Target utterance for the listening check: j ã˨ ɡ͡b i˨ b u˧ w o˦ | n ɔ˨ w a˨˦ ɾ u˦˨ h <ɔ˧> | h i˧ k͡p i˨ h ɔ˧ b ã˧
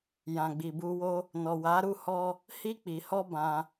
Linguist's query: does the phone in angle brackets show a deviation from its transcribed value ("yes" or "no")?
no